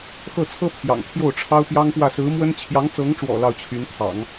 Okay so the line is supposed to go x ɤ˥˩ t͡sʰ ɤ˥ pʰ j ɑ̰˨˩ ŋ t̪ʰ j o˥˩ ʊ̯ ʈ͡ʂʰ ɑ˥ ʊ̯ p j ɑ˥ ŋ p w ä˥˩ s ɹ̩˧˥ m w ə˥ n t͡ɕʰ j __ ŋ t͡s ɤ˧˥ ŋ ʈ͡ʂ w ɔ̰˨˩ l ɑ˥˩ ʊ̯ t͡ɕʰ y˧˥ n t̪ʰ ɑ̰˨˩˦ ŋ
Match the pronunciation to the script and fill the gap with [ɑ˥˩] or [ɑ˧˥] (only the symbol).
ɑ˧˥